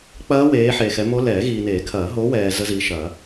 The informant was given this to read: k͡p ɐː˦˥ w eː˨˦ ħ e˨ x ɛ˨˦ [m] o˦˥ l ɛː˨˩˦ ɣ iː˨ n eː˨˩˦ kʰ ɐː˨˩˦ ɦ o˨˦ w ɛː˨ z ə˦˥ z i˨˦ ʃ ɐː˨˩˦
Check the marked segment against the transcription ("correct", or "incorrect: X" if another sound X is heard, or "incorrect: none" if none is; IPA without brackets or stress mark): correct